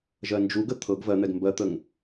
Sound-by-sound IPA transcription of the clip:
ʒ ɜ n d͡ʒ u ɡ ə t̪ʰ ɤ ɡ v ɜ n̪ ɛ ɡ m b ɜ t̪ ə ŋ

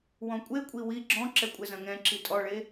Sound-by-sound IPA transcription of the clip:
w ɔ̃ kʷʼ e kʷʼ i w i ɡ͡ǁ ɔ̃ ǁ ɛ kʷʼ ɛ z ɐ̃ ŋ ɛ̃ ǁ i tʼ ɔ ɭ e

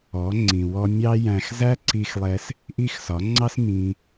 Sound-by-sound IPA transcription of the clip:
ɔ˨˦ ŋ͡ǀ ĩ˨ w ɔ˧ mʲ ɑ˦ j æ̃˧ x z æ˦ ǀ i˧ x lˠ ɛ˧ s | ʔ i˦ x s ɒ˨˦ ŋ͡ǀ ɑ˦ s m ĩ˧

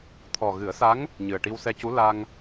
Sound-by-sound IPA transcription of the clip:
t̪ʰ ɔ˨˩ ɣ ɨ˨˩˦ ə̯ s a˧˥ ŋ | ɲ ɨ˨˩ ə̯ ʈ i˧ w s ɛ˧ c u˧˥ l a˧ ŋ

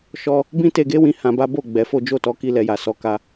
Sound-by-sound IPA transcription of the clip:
ʃ ɔ˦ | b ĩ˦ t e˧ ɡ e˦ w ĩ˧ h ã˧ b a˦ b o˦˨ ɡ͡b ɛ˨˦ f o˦ d͡ʒ o˦˨ t ɔ˨˦ k i˦ l ɛ˧ j a˨ s ɔ˨˦ k a˧

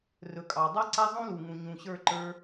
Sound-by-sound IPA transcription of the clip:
r ɵ˨ kʼ ɑ˨ dˤ a˦ ǀ a˦ zˤ ũ˦ l u˨ ŋ ũ˨ ɲ ũ˨ ɕ ə˞˦˨ ǃ ə˞˧

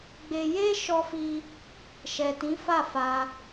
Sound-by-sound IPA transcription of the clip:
ɡ͡b e˧ j e˦ ʃ ɔ˧ f i˧ | ʃ ɛ˨ t ĩ˨˦ f a˦˨ f a˧

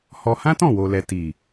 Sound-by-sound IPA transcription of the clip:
h ɔ˧ h ã˦ t ɔ̃˦˨ w o˨ l ɛ˨ t i˨

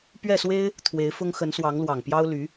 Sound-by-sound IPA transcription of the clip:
p ɥ ɛ˥˩ s w e˥ ɪ̯ | t̪ʰ w e˧˥ ɪ̯ f ʊ˥ ŋ x ə˧˥ n s w ɑ˧˥ ŋ l w ɑ˨˩ ŋ p j ɑ˥ ʊ̯ l y˧˥

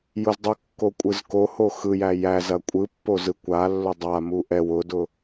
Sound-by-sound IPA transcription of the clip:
j ʊ z dˤ u kː o kʷʼ ɯ z k o h o x ɯ j æ j æ z ɐ kʷʼ ɯ pː o z ɯ kʷ a lː ʊ dˤ a m u ʔ ɛ w ʊ d ʊ

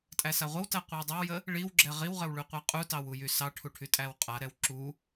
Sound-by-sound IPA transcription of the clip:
tʼ æ s a ʁʷ ə w t æ qʷ ə w dˤ ə w j ə | ɭ i w ɡ͡ǁ ɛ ʁ i w ʁ ə w ɭ y qʷ a qʼ u t ɑ w u j y s ɑ ʈʰ u ʈʰ y tʼ æ w qʼ a ɾ ɛ w ǁ u

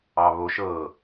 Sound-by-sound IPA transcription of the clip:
ɑ β o ʃ ɤ

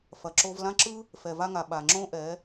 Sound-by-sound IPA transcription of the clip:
f ɐ˨ ǁ o˧ v l ã˦ ǁ ɯ˦ | f ɛ˨ v a˧ ŋ a˨ ɓ a˨ ŋ͡ǁ õ˦ ʔ ɛ˨˦

